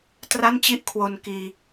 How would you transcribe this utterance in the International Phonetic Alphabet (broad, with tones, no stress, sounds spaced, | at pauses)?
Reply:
t r a˥˩ n t͡ɕ i˥˩ ʔ kʰ w o˧ n k iː˧